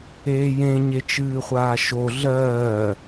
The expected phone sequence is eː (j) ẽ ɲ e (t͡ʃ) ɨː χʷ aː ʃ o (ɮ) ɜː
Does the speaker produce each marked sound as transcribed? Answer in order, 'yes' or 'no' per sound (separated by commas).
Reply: yes, yes, yes